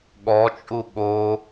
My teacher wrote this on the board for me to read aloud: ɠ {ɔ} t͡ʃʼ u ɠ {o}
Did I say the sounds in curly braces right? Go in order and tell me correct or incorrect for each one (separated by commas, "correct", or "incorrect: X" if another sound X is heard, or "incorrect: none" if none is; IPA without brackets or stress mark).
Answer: correct, correct